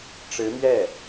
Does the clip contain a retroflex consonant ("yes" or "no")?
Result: yes